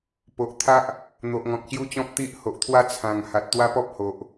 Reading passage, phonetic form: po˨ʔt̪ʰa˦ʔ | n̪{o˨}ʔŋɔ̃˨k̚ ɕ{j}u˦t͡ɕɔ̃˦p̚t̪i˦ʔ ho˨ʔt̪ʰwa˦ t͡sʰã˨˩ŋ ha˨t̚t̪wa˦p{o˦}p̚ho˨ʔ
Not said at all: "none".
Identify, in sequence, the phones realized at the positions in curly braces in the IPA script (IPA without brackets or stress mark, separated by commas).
o˨, j, ɔ˦